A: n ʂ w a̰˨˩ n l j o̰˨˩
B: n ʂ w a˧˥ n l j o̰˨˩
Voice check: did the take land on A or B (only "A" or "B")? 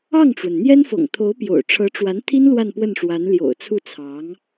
B